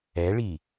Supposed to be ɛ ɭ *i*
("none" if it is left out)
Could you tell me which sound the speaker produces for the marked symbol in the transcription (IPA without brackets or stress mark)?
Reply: i